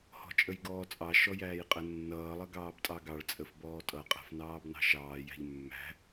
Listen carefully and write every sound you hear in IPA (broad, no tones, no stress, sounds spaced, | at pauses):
h ɔ̤ t͡ʃʼ ə j ɡ ɔː t͡sʼ ɑ ʃ ɔ j æː j qʼ ə nː ʌː lˠ ʌ ɡ ɑː b tʼ ɑ ɡ ɑ ɭ t͡sʼ ə f b ɔː tʼ ʌ qʼ æ̤ f n ɑː b n ɑ̤ ʃ ɑː j æ̤ ʎ mː æ̤